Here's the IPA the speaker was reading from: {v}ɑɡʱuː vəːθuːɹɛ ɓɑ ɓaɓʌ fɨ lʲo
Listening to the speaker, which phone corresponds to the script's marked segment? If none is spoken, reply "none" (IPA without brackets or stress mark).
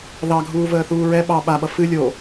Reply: ð